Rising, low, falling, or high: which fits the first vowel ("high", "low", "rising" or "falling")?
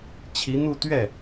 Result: rising